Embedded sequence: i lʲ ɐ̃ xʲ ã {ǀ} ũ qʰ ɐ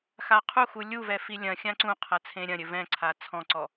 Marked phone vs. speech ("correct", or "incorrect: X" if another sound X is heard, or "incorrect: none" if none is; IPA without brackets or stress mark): correct